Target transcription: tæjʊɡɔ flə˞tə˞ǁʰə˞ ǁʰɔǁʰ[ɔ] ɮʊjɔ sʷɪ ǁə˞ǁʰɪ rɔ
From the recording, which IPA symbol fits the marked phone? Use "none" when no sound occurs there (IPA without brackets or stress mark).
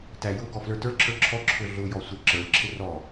ʊ